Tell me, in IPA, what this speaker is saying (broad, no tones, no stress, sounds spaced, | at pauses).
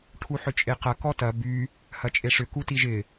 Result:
ʈʰ u ħ ʏ t͡ʃʼ e q ɐ k ɔ t ɐ b y | h ɐ t͡ʃʼ e ʂ ʏ k u t i ʒ ɪ